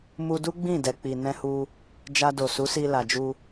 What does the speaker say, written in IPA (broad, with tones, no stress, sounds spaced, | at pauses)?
m u˧ d u˦ ɡ͡b ĩ˦˨ d ɛ˨ k͡p i˨ n ɛ̃˧ h u˧ | d͡ʒ a˧ d o˨ s u˨˦ s i˧ l a˨ d͡ʒ u˧